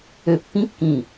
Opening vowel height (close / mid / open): mid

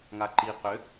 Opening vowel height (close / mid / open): open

